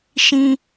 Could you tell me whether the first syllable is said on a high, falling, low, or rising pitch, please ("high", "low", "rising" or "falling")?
high